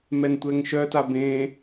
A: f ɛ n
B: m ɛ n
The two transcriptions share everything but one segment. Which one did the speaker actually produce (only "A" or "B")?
B